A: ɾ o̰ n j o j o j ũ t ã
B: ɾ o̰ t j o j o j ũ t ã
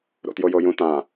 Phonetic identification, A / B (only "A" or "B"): B